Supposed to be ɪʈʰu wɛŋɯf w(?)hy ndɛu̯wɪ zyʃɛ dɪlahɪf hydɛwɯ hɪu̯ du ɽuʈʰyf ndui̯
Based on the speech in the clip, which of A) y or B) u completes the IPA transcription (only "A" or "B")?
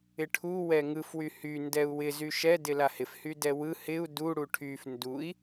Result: A